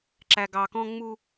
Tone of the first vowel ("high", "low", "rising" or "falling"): low